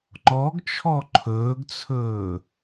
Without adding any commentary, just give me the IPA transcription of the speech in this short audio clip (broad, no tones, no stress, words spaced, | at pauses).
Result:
ŋ͡ǃɔɡt͡ʃʰɔ ǃʰɵːɡt͡sʰɵː